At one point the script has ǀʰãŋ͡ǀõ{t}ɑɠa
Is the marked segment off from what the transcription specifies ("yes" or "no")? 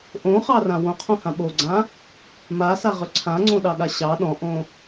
yes